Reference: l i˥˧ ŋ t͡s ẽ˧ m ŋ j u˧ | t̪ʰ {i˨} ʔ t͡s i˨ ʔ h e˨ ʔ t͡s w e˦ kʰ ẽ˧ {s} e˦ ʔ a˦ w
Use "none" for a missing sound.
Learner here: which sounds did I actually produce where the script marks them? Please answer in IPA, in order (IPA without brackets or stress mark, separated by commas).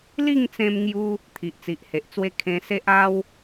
i˨, s